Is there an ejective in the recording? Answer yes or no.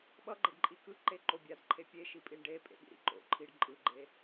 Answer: yes